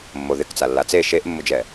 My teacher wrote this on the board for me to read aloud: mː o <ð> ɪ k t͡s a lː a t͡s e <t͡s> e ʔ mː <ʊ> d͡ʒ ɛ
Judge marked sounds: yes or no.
yes, no, yes

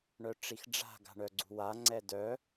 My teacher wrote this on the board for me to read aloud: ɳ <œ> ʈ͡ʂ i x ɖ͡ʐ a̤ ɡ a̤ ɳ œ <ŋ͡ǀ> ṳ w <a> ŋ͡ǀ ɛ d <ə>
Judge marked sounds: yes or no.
yes, no, yes, no

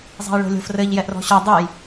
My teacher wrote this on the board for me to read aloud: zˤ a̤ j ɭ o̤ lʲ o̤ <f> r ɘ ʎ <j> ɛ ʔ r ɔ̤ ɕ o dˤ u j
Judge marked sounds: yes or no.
yes, yes

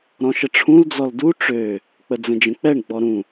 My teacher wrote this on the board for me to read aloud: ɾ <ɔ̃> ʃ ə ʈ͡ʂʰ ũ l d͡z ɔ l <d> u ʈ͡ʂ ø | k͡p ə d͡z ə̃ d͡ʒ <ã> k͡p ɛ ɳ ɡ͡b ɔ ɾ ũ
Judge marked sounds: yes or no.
yes, yes, no

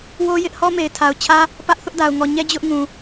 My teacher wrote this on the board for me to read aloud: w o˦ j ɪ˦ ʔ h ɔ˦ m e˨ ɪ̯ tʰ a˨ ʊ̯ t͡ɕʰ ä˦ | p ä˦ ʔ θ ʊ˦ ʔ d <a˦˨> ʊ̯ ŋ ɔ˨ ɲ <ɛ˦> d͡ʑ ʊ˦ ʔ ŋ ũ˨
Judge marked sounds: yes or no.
no, yes

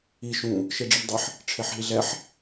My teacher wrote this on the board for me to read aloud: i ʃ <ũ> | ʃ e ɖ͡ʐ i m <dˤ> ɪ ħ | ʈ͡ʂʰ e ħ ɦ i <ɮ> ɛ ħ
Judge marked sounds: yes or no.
yes, yes, yes

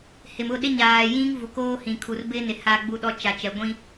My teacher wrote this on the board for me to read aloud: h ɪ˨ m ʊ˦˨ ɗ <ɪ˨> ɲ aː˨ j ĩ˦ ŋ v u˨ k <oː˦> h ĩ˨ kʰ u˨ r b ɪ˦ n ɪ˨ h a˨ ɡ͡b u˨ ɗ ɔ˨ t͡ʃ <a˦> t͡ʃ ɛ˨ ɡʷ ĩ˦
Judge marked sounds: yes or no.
no, yes, no

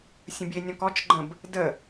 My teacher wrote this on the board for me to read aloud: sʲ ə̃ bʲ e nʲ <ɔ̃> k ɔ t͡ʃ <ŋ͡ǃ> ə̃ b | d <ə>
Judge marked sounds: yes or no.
yes, no, yes

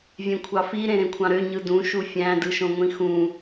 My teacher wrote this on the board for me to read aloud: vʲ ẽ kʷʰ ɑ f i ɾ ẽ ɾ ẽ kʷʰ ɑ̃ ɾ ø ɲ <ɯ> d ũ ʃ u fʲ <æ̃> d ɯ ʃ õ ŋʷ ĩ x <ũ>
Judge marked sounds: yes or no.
yes, yes, yes

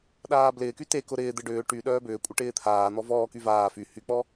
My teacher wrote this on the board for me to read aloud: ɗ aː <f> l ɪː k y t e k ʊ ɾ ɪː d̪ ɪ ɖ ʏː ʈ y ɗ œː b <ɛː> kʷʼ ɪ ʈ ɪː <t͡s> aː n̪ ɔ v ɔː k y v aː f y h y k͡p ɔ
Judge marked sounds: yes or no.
no, no, no

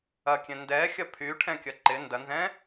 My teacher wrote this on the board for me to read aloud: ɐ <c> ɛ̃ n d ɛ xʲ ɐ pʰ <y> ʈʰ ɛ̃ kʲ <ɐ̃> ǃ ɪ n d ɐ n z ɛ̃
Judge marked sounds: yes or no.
no, yes, no

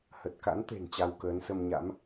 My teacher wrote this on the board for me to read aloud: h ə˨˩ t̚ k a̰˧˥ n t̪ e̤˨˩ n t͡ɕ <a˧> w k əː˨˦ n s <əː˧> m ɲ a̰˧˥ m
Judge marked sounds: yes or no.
yes, no

